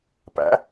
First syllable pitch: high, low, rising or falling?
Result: rising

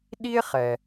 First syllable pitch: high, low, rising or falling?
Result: high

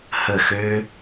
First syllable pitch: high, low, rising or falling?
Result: falling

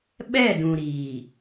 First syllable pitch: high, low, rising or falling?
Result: falling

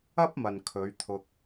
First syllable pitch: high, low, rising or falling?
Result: high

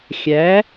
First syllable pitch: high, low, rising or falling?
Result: rising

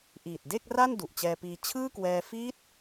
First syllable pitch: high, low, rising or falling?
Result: low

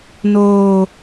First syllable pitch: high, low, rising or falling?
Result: high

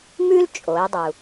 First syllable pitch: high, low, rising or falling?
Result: high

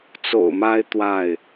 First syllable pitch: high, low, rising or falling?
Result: low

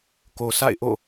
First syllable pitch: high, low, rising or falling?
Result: low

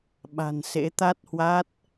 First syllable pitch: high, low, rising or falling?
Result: low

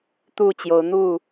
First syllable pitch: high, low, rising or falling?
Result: falling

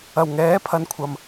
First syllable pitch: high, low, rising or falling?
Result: low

